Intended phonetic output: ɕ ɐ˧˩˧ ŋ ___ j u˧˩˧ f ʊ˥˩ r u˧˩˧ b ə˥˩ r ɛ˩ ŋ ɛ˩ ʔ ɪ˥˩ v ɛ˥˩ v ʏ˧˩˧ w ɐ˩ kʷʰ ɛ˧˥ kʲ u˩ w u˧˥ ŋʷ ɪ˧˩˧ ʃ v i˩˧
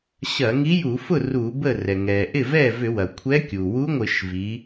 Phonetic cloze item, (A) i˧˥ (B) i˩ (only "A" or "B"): A